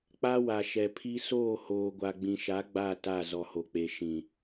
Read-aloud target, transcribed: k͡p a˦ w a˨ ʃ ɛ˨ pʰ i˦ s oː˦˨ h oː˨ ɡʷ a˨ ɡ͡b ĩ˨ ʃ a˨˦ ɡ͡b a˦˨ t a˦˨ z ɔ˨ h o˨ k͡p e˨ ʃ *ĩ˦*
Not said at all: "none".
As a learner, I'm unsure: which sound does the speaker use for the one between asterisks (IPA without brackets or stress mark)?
ĩ˨